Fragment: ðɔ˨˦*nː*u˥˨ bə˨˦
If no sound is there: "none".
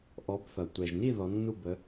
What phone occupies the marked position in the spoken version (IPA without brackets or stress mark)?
nː